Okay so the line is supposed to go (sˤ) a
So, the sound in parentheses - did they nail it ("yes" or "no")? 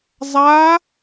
no